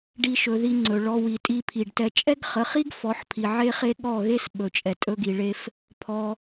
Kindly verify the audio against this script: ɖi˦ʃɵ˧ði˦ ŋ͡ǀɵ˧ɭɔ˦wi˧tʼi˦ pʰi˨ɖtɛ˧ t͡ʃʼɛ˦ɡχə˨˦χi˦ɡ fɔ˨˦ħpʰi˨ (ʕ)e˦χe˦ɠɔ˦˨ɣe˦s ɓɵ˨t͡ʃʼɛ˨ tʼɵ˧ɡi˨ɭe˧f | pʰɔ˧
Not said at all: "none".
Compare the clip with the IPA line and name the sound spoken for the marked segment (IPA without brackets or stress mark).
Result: ʕ